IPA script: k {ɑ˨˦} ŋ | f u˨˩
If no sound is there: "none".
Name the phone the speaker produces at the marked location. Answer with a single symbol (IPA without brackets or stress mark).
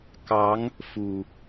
ɑ˨˦